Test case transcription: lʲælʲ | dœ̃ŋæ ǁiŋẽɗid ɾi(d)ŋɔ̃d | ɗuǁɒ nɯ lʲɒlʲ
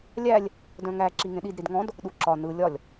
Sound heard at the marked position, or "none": d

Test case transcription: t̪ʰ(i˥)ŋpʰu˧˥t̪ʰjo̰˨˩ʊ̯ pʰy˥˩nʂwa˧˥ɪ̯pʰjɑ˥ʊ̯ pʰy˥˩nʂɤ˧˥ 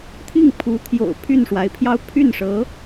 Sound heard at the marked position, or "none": i˥˩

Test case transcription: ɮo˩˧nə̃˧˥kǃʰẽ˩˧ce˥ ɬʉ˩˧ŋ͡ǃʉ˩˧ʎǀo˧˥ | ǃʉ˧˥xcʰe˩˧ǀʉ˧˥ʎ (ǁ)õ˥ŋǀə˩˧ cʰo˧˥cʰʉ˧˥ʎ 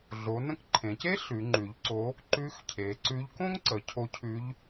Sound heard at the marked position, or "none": k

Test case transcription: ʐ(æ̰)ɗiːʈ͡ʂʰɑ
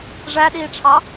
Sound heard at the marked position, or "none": æ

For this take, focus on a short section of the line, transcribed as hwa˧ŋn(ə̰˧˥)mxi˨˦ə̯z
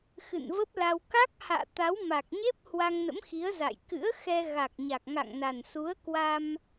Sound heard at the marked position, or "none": ə̰˧˥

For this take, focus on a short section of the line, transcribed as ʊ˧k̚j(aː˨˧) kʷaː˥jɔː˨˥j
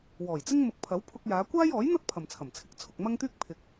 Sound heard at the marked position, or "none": aː˨˧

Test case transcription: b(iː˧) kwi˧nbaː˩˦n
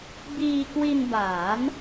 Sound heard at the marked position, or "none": iː˧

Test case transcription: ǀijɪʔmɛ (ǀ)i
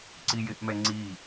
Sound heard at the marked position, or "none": ŋ͡ǀ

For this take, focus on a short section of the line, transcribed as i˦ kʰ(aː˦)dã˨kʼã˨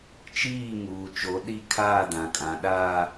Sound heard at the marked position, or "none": aː˦˨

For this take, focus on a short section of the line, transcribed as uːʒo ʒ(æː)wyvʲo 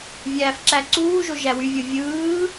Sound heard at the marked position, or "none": æ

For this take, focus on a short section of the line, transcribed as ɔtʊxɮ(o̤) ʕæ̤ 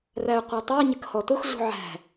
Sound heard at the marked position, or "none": ṳ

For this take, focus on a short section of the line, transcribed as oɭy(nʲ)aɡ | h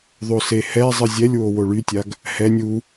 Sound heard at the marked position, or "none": tʲ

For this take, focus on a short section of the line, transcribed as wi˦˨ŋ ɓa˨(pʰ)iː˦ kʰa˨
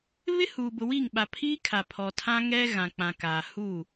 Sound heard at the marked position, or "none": pʰ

